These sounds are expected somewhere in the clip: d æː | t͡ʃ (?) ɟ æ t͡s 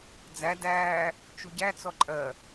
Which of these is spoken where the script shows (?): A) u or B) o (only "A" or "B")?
A